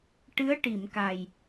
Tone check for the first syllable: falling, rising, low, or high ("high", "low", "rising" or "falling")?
rising